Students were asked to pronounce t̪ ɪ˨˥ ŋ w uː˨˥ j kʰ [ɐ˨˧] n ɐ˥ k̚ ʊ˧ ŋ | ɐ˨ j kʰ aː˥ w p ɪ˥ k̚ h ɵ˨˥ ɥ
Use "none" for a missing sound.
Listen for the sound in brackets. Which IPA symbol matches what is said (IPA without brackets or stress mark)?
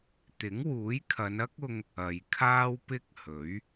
ɐ˨˧